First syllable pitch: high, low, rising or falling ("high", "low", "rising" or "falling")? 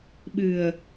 low